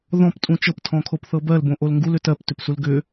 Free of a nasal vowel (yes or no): no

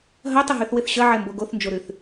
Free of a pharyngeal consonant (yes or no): no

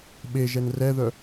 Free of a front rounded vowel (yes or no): no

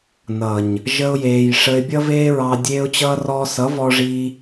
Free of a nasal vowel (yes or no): yes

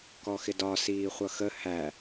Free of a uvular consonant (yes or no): no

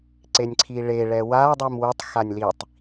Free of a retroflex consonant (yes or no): no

